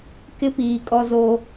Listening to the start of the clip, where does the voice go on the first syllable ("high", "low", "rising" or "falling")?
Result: high